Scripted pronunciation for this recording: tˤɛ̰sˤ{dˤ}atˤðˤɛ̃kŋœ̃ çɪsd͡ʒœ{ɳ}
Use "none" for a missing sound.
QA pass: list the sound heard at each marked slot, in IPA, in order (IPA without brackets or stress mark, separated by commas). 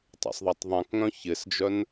ðˤ, n